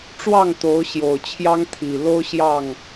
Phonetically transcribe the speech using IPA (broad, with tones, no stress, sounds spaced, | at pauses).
ʈ͡ʂ w ɑ˥˨ ŋ t̪ o˨˦ ʊ̯ ɕ j o˨˩ ʊ̯ t͡ɕʰ j ɑ˦ ŋ t̪ʰ i˨˩ l o˦ ʊ̯ ɕ j ɑ˥˨ ŋ